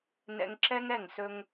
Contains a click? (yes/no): yes